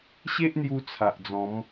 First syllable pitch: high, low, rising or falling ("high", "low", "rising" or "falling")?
high